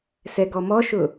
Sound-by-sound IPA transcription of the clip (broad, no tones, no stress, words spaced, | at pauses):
sɛɡɔmɔʃʊ